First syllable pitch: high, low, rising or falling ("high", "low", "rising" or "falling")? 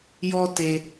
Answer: high